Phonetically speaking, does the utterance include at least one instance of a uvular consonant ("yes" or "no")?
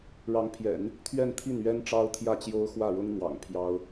no